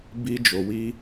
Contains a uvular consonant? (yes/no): no